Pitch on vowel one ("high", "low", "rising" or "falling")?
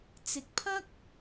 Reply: low